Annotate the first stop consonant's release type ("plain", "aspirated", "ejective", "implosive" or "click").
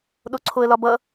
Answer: implosive